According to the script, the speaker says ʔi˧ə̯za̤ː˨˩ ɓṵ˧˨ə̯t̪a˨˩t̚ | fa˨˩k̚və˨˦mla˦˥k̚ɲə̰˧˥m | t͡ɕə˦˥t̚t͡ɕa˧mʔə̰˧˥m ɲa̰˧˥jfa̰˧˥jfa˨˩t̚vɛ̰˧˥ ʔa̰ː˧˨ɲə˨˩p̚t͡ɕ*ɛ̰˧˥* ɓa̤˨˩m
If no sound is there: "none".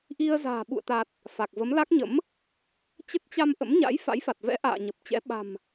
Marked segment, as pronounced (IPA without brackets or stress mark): ɛ̰˧˥